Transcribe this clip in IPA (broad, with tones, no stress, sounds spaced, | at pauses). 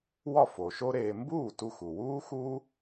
w ɒ˥˩ f o˩ ʃ o˥ ɾ eː˧ m b uː˥˩ t u˧ x u˩ w uː˥ x uː˥